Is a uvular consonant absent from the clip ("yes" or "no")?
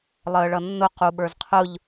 no